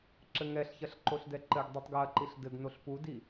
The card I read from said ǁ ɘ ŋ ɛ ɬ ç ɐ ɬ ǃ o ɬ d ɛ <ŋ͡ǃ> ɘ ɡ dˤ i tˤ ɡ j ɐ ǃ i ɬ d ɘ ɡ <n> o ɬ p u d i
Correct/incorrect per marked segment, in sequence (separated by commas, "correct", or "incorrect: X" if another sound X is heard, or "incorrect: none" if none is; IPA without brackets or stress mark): incorrect: ǃ, correct